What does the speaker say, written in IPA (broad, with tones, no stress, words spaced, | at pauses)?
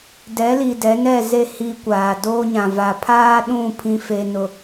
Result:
dɛ˨˦li˨ dɛ˨˦nɛ˦˨ze˦˨ hi˦kʷaː˨ do˦ɲã˨ va˨pʰaː˦ɗũ˦˨ pʰĩ˦fe˦ nʊ˨